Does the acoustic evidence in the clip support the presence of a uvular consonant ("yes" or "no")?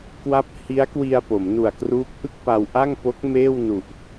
no